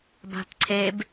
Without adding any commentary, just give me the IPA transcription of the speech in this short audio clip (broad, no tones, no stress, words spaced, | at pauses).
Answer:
ba̤tǀʰeb